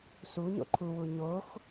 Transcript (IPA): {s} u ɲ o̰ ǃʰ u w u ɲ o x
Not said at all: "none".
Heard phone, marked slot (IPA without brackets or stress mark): s